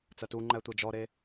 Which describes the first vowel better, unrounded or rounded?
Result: unrounded